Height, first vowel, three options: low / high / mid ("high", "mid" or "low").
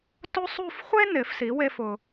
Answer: mid